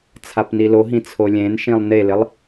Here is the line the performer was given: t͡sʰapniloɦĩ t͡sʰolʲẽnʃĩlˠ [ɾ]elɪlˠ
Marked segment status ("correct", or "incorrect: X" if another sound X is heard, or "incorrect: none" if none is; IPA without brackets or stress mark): incorrect: n